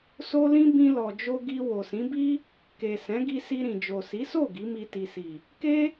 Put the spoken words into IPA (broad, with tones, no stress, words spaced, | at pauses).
so˦lĩ˦ bĩ˧lɔ˨d͡ʒo˧ ɡi˧wo˨sĩ˨˦bi˦ | ke˨ sɛ̃˨˦ɡi˧si˧ ɾĩ˨ d͡ʒo˨si˨˦so˦˨ ɡi˨˦mi˧ti˨si˨ | ke˦